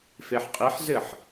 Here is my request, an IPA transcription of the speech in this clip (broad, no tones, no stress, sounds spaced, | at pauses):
f e ħ qʼ i ħ z ɘ ħ